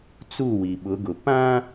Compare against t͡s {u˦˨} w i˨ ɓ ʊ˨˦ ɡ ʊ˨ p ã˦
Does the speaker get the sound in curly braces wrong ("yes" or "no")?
no